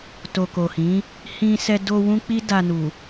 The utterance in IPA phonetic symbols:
t o˨ k o˨ h ĩ˨˦ | h ĩ˧ s ɛ˧ d o˧ w ũ˦ k͡p i˦ d a˧ n u˨

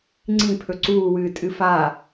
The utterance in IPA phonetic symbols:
ŋ͡ǀ ĩ pʰ ɵ ǀ uː w ɨː tʼ ɨ f a

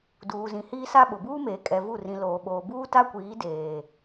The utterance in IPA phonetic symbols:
d uː˨ z ĩ˨ h iː˦ s a˦ ɓ ʊ˨ b uː˦ m eː˨ kʼ ɛ˨ v u˦˨ r ĩ˨ l oː˨ ɓ oː˨ b uː˦ t a˦ kʷ iː˨˦ d eː˨

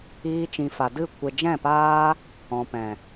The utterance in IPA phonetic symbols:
iː˧ t͡ʃ ĩ˨ f a˨ d ɨ˦˨ kʷ e˨ d͡ʒ ɛ̃˦˨ p aː˦ | ɔ̃˨ p ɛ̃˨

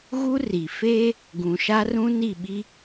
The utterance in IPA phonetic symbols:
ɣ u˦ r i˨ f eː˦ | ɡ ũ˨ ʃ a˦ r ũ˦ n i˦˨ ɓ i˦

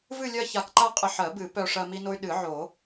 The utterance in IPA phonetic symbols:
v ɨ˥˧ lʲ ɜ˥˧ ç a˧ k ǃ a˥˧ qʼ ə˧ ħ ɜ˨˩˦ b ɨ˨˩˦ p œ˧ ʂ ɜ˧ m i˧ n o˧ y̯ ɗ ɨ˨˩˦ ʕ o˨˩˦

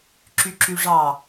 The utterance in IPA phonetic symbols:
ǁ y ǁ y ʐ ɑ

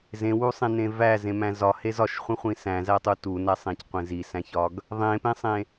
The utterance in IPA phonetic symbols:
z ẽ w u sˤ ẽ n ẽ v æ z ẽ m æ̃ z ɒ h e z ɒ ʃ χʷ ẽ χʷ ĩ s æ̃ z æ tˤ u t u n æ sˤ ẽ c qʷ ẽ z i s æ̃ ç ɒ ɡ | ðˤ ẽ p ẽ sˤ ẽ

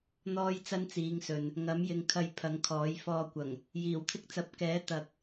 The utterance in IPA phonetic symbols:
n̪ ɔː˥ j t͡s ɐ˥ n t͡s iː˨˧ ŋ s ɵ˨ n | ŋ ɐ˨˥ m j ɪ˨ ŋ kʰ ɐ˨˧ j pʰ ɐ˨˥ ŋ kʰ ɔː˨˥ j f ɔː˧ kʷ ɐ˨˩ ŋ | j iː˨˩ w t̪ʰ ɪ˧ k̚ t͡s ɐ˨˥ p̚ k ɛː˨˥ t̪ ɐ˧ k̚

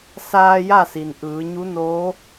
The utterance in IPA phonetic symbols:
s aː˧ j a˥˨ s i˩ n ʔ ɯː˩˧ ɲ u˧˥ n oː˧˥

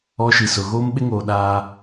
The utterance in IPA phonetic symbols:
ɔ˦ ʃ i˨ s ʊ˨ ɣ oː˦ m ɓ ɪ˦ ŋ oː˨ ɗ aː˦

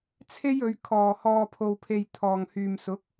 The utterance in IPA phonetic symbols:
t͡sʰ e˥ j ɵ˨˧ ɥ kʰ ɔː˨ h ɔː˧ pʰ o˧ w pʰ e˧ j t̪ʰ ɔː˨ ŋ h yː˨ m s ʊ˨˥ k̚

